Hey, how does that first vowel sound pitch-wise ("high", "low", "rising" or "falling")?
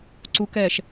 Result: rising